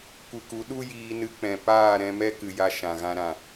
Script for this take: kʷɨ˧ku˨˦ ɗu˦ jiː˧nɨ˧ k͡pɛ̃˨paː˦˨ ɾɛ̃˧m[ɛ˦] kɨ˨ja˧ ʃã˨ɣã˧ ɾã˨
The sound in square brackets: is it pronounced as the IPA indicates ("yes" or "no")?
yes